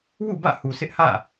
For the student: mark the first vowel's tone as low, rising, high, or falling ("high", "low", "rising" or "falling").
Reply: falling